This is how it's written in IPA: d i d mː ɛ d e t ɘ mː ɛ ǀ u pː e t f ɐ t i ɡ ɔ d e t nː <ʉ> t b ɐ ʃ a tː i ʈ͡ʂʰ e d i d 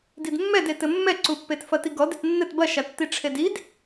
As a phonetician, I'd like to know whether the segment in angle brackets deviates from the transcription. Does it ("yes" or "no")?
yes